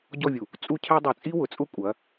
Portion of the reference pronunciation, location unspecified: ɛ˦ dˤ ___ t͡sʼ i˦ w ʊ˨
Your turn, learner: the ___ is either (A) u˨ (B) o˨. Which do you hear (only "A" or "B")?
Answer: B